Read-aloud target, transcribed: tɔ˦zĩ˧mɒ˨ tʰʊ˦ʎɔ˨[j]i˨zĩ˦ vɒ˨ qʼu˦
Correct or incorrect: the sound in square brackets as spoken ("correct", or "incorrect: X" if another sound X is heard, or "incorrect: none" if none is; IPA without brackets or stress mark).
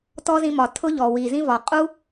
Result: incorrect: w